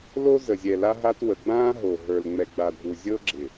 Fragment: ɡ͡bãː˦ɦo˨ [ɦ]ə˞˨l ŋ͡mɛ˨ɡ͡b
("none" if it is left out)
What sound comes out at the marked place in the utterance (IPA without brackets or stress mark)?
ɦ